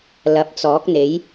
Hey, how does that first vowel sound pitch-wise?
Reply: low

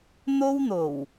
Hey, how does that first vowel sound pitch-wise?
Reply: high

